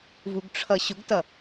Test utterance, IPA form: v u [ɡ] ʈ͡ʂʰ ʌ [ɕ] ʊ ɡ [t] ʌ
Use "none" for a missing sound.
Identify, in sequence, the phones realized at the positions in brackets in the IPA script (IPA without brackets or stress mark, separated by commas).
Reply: ɡ, ɕ, t